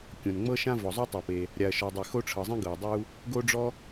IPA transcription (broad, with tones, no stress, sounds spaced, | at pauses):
kʲ õ˩ n ŋ͡m ɤ˥ ʃ ã˥ v ɔ˩ zˤ u˥ tˤ ɤ˩ p e˩ | ɾʲ a˩ ɐ̯ ʃ ɔ˩ dˤ e˩ x o˥ ʈ͡ʂʰ ɤ˩ zˤ ĩ˥ ɡ ɤ˩ ɐ̯ dˤ u˥ | ɡ o˥ ɖ͡ʐ ɔ˥